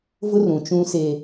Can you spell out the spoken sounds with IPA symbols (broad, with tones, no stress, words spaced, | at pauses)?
vʊ˦rũ˨t͡ʃũ˦se˦